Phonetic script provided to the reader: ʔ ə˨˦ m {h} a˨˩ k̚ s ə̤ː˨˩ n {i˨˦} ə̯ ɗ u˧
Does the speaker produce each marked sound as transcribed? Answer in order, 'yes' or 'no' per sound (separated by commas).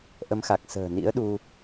no, no